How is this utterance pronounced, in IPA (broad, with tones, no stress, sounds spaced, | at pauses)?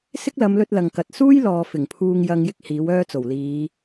s ɪ˥ k̚ l ɐ˨˧ m l ɵ˧ t̚ l ɐ˨ ŋ k ɐ˨ t̚ s uː˥ j l ɔː˨ f ɪ˨˩ ŋ pʰ uː˧ ŋ j ɐ˧ ŋ j ɪ˥ k̚ h iː˨˥ w œː˥ t͡s o˨˩ w l iː˨˧